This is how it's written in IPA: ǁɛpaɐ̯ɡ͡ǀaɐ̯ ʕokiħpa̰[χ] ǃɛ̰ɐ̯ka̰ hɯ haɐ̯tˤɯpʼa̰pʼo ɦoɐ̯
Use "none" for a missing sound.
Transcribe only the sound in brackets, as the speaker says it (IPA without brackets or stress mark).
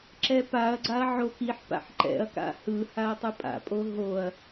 ħ